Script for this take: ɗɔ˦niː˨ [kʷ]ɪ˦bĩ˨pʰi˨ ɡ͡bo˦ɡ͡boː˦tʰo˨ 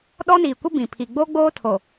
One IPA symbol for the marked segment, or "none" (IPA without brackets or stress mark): kʷ